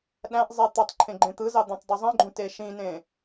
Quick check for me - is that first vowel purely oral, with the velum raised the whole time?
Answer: no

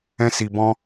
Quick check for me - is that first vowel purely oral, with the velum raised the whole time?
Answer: no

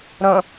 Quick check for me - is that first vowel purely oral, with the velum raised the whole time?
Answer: no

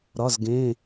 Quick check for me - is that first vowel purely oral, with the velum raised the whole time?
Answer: yes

